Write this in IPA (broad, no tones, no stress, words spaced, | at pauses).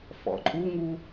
fɔ̰ǃʼuŋu